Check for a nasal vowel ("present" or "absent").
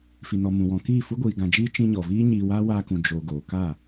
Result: present